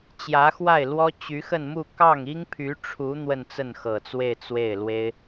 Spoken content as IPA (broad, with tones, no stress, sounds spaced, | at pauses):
t͡ɕ j ä˧˥ x w a˥˩ ɪ̯ l w ɔ˥ t͡ɕ y˧˥ x ə˥˧ n m u˥˧ k ɑ˥˩ ŋ i˥ ŋ pʰ y˧˥ ʈ͡ʂʰ u˧˥ n̪ w ə˥˧ n t͡s ə˥˩ n x ɤ˨˩ t͡s w e˥˧ ɪ̯ t͡s w e˥˩ ɪ̯ l w e˥ ɪ̯